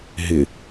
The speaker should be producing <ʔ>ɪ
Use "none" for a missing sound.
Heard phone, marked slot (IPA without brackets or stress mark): ɦ